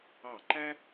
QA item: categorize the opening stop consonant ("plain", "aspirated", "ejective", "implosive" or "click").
click